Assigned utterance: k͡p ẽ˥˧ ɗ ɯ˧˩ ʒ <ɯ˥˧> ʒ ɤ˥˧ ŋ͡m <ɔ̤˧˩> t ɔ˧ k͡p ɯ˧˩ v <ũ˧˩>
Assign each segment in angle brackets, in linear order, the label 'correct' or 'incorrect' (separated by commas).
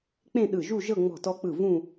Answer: incorrect, correct, incorrect